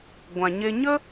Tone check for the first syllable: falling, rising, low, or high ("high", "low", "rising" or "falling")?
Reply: low